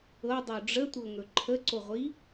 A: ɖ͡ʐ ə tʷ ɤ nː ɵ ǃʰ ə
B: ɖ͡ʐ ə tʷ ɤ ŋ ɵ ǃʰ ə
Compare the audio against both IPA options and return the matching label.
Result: B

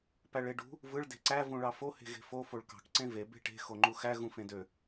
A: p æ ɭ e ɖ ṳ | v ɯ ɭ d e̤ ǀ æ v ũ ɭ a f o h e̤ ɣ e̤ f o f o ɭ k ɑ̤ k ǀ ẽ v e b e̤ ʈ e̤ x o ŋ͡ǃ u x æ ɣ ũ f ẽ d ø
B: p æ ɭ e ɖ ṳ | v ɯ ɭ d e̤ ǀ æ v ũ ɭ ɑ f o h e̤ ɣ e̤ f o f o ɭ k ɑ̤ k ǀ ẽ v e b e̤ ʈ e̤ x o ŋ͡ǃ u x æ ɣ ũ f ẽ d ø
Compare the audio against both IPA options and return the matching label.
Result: B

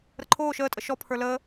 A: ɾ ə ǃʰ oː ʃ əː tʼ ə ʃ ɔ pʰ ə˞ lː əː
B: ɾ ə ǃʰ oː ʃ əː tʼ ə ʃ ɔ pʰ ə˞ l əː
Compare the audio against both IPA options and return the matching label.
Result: B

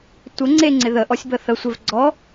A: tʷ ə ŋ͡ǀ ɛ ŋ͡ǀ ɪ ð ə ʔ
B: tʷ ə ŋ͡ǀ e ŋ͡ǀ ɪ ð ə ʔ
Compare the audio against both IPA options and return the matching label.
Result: B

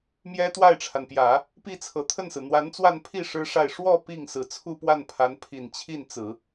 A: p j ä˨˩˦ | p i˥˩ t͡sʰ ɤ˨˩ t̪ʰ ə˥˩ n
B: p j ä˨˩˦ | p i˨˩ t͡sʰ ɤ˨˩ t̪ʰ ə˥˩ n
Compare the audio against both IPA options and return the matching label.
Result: A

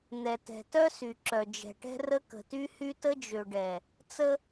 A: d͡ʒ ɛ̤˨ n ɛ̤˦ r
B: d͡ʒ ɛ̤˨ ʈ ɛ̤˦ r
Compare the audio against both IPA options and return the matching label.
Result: B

